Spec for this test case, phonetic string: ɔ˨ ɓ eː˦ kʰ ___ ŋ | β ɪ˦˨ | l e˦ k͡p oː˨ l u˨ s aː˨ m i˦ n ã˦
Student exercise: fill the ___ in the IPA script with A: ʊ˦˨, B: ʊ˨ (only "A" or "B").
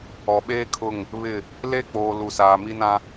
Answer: A